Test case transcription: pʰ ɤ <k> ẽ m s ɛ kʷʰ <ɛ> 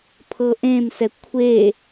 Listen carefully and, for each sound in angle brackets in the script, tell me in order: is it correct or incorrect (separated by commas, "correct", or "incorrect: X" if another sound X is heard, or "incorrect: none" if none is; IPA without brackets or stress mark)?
incorrect: ʔ, incorrect: e